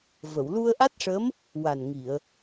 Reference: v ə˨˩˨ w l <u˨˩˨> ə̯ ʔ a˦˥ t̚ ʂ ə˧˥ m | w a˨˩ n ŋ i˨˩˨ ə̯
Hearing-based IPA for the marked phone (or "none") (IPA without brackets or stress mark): u˧